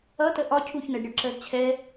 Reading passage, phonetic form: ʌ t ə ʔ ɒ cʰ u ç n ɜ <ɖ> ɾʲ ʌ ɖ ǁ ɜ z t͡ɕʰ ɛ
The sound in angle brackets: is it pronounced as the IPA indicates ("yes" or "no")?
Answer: yes